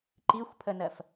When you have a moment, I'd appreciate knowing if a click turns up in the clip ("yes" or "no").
yes